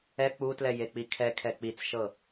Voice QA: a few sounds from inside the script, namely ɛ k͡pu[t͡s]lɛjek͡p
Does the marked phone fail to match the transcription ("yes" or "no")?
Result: yes